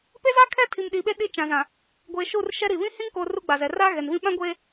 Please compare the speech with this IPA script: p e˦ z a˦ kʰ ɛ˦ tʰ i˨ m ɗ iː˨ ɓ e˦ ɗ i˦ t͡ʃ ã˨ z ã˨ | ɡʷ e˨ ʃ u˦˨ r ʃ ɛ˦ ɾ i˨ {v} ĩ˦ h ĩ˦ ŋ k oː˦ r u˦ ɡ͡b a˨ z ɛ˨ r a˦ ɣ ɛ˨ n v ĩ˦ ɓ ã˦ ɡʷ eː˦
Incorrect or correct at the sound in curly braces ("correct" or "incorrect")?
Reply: incorrect